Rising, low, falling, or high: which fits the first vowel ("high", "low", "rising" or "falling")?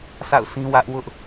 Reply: falling